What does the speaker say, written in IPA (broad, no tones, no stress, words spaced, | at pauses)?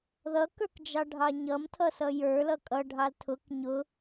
ðʌkə˞k d͡ʒɑɖʱɑɲʌmtʰʌ sʌjə˞lʌ kʼʌɖʱɑl tʰʊk ɲʊ